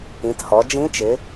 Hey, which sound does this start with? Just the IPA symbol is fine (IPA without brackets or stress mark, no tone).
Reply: ĩ